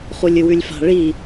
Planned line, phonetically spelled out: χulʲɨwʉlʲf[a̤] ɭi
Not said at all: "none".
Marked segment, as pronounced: a̤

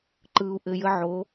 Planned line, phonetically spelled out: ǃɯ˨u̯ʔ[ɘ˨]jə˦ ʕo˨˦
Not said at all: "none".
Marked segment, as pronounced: ɘ˨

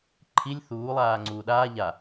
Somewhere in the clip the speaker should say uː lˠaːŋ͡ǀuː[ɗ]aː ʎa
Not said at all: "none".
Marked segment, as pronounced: ɗ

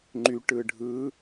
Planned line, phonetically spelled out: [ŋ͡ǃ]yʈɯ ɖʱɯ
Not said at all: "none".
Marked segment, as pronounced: ŋ͡ǃ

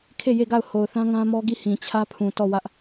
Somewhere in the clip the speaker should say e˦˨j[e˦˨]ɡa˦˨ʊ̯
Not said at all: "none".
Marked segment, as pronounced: e˦˨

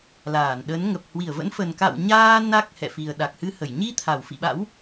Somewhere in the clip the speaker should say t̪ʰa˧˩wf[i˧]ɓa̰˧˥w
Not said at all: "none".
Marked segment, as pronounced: ḭ˧˨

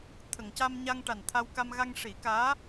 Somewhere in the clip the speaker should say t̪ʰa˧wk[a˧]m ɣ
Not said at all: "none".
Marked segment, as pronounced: a˧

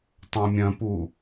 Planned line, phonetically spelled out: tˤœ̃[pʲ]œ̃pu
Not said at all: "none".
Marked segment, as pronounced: mʲ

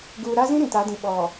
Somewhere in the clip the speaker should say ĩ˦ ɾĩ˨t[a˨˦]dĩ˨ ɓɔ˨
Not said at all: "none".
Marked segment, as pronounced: a˨˦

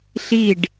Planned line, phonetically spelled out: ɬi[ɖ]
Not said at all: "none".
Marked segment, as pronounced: ɖ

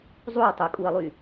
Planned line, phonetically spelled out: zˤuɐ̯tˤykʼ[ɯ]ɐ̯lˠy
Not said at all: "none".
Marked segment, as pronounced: u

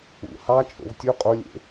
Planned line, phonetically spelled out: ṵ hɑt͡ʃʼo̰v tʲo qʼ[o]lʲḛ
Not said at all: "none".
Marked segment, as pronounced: o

